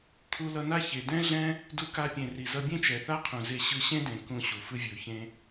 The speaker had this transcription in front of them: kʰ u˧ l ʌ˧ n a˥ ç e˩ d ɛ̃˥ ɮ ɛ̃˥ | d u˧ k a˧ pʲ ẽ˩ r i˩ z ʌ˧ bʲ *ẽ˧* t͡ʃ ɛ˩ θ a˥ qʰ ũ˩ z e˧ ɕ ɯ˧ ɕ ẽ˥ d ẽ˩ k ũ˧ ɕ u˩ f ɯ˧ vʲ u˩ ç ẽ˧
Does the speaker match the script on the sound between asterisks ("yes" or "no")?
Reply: no